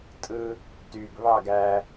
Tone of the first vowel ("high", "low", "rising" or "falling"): high